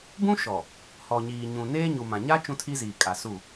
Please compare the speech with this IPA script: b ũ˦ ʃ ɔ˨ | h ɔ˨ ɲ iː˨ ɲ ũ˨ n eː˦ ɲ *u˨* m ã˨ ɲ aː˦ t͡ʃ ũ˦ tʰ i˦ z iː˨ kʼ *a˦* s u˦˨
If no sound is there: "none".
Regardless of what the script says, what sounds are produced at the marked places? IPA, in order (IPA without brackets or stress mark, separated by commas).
u˨, a˨